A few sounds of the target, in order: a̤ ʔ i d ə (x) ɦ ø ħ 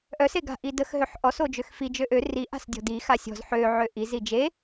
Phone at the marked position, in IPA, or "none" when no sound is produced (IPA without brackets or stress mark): x